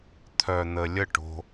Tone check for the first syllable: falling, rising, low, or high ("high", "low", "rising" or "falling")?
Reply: low